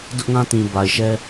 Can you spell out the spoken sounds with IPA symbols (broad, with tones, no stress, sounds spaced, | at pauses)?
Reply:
d ʊ˦ ʔ ŋ ã˦ t ĩ˨ b a˨ ɪ̯ ʃ ɛ˦